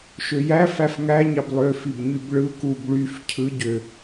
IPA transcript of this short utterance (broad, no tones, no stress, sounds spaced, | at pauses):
ʃ ø j æ f æ f ŋ æ ɲ ɑ b lˠ ø f i b ɲ y b ɭ ɯ k u b ɭ y f cʰ ɯ ɟ ø